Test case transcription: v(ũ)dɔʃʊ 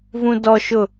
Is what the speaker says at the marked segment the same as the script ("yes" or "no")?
yes